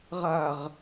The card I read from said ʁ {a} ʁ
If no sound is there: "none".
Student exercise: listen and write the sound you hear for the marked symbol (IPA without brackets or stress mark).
a